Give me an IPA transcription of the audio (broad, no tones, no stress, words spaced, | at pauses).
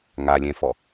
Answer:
ŋalʲɛ̃fɔ